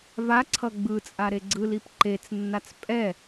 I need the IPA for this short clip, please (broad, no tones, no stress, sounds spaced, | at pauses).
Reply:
v a ǀʰ ʌ ɡ͡b ɯ t͡sʼ a ɾ e ɡ͡ǀ ɯ l i p ǃ e t͡s nː a t͡s pʼ ɛ